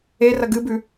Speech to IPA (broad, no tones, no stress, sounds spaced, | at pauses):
e r ɐ ɡ ɨ b ʉ